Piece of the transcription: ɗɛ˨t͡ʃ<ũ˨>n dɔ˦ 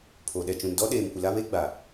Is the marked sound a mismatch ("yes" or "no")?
no